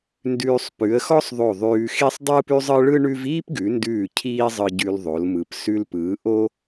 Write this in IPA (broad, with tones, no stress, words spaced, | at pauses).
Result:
ndʉː˧sˤ pʉ˩˧ə̯xɔ˥sˤðˤo˧˩ ðˤʉː˧xi˥sˤ dˤɯː˥pʉ˥zˤɯ˥ ɭɯ˥ ɳʉ˥v iː˥pɡʉ˩˧ndʉː˧˩ cʰiː˥zˤɯ˧ɟʉ˧lðˤo˩˧l mɯ˩˧p sʉ˧lpɯː˩˧ ʔo˥